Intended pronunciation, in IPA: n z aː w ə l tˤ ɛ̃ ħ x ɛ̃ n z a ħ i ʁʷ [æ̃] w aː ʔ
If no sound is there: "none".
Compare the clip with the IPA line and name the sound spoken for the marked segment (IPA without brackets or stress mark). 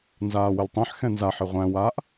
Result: æ̃